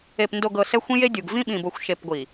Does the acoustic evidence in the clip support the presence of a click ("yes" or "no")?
no